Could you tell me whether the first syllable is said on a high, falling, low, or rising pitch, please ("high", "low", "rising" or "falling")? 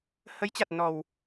rising